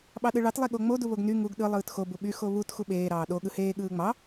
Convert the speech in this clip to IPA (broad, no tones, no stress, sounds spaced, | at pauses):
ɓ ɑ ɗ ɯ ɭ ɑ t lˠ e ɠ o ŋ͡m o d u β o ɡ n y ŋ u ɡ ɗ ɯ lˠ ɯː t x o b u ɓ y x o β u t x u ɓ eː ɾ ɑː ɗ o ɠ ɯ h eː ɠ ɯː ŋ͡m ɑ